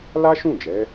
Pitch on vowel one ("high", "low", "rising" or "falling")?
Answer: high